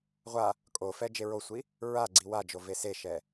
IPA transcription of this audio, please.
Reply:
ʁʷ a | kʼ o f ɛ d͡ʒ e ɹ o sʷ i | ɹ a ɡ͡ǀ i w a d͡ʒ o v e s e ʃ ɛ

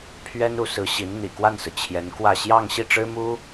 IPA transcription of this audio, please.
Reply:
pʰ ɥ ɛ˥ n u˧˥ s ɹ̩˧˥ ɕ i˧˥ n n̪ ḭ˨˩ k w a˥˩ n s ɹ̩˩ t͡ɕʰ j ɛ˧˥ n k w ä˥˧ ɕ j ɑ˥˧ ŋ ɕ i˥˩ ʈ͡ʂ ɻ̩˥ m u˥

